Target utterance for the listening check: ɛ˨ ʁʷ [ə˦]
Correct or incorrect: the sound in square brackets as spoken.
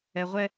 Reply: incorrect: ɛ˦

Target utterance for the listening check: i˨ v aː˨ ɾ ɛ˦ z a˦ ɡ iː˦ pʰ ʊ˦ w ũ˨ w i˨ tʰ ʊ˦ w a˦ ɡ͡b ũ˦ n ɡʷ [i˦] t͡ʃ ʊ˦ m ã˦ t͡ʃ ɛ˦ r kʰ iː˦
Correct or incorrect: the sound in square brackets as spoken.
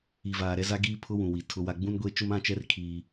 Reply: incorrect: e˦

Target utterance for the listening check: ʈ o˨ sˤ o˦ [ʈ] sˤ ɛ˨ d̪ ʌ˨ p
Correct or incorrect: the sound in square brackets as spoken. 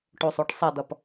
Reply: correct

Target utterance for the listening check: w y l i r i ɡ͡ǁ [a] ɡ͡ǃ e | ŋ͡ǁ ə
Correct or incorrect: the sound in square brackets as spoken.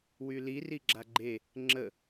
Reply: correct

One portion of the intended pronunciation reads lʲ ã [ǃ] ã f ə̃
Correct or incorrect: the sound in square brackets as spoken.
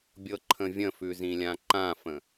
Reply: correct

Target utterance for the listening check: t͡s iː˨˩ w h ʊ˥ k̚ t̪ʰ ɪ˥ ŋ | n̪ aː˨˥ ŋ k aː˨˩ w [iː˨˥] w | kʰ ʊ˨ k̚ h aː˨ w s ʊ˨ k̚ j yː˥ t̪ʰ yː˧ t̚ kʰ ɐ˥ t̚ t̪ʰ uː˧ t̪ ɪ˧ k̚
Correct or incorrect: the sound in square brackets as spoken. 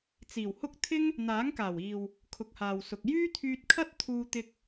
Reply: incorrect: iː˨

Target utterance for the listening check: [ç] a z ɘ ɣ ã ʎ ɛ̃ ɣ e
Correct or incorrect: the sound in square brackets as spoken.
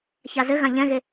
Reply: correct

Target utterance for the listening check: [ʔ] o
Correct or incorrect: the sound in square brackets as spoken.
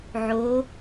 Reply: incorrect: ʕ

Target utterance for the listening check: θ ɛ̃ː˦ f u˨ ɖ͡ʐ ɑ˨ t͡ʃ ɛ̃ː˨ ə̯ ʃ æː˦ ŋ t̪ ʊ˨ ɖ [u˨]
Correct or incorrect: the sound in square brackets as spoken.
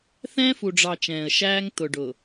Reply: incorrect: ʊ˨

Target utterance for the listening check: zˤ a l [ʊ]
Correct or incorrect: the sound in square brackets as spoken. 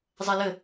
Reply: incorrect: ə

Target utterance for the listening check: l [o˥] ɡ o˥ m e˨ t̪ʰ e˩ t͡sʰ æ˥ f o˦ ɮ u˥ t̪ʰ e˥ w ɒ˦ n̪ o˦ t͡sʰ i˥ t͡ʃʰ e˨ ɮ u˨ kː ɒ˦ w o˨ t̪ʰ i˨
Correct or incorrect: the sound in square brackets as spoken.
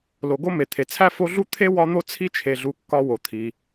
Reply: incorrect: o˨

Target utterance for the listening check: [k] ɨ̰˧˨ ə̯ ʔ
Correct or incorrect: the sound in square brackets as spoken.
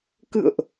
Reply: correct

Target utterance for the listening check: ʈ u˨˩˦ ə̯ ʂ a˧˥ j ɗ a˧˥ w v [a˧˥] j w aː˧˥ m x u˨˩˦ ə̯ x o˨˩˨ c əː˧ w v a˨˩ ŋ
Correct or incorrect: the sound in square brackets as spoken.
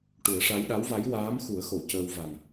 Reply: correct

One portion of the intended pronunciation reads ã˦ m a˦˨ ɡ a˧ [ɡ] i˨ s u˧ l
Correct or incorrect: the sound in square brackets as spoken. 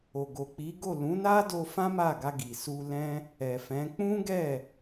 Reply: correct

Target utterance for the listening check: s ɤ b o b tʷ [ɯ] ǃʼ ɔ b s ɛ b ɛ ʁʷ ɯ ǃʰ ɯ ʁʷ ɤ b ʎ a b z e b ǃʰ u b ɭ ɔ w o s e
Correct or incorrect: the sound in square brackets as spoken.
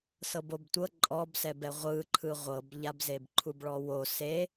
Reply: incorrect: ɤ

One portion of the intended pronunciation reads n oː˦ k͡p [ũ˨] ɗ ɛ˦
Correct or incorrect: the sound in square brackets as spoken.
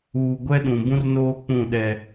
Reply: incorrect: ũ˦˨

